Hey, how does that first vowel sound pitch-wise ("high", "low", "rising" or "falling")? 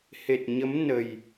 low